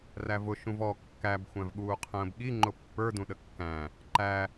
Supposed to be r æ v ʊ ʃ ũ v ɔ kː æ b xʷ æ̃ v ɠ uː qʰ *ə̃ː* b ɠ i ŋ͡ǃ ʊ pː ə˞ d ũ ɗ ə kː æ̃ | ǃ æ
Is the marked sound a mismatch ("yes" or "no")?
no